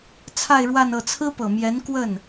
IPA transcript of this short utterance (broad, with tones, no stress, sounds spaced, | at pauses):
t͡sʰ a˥˧ ɪ̯ ɻ w a˥˧ n ɤ˥˩ t͡sʰ ɹ̩˥ p ɤ˨˩ m j ɛ˧˥ n k w ə˥˩ n